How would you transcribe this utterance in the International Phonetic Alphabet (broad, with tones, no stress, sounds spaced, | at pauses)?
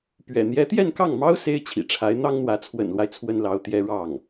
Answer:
p ɥ ɛ̰˨˩ n̪ j ɛ˧˥ t̪ j ɛ˥˧ n k ɑ˥˩ ŋ m ɑ˥ ʊ̯ s e˥ ɪ̯ t͡ɕʰ ḭ˨˩ ʈ͡ʂʰ a˧˥ ɪ̯ n̪ ɑ˥ ŋ n̪ w ä˧˥ t͡sʰ w ə̰˨˩ n l w a˦ ɪ̯ t͡sʰ w ə˥ n l ɑ˧˥ ʊ̯ t̪ j ɛ˥ ɻ ɑ˥˩ ŋ